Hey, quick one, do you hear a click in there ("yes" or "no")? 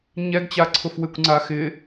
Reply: yes